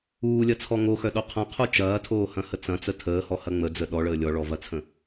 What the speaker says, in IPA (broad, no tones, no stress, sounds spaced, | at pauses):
uː lʲ ɐ t͡sʰ ɔ ŋ o x œ ɗ o qʰ ɐ̃ qʰ u t͡ʃ ɐː tʰ oː h ɐ̃ h ə t͡s ɐ̃ t͡s ə tʰ əː h ɔ h ɐ ŋ͡m ə d͡z ə ɗ ɔ ɭ əː lʲ ɔ ɭ ɔ v ɐ t͡sʰ ə̃